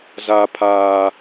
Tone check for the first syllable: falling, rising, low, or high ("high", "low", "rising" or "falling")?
high